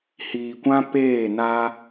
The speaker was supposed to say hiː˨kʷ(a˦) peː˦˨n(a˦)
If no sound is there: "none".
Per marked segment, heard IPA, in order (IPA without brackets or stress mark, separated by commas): ã˦, a˦